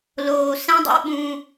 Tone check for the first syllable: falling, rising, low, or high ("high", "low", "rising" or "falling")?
low